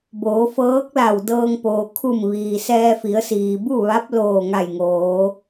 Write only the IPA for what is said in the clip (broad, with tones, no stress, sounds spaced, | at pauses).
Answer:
b oː˩˧ f ɤː˧˥ k̚ l a˧˩ w d ɤː˧ ŋ p oː˩ kʰ u˧˩ m ʋ iː˩ s ɛː˧ f i˩˧ ə̯ s iː˩ b u˥˨ ʋ a˧˥ p̚ l oː˧˩ ŋ a˧˩ j ŋ oː˩˧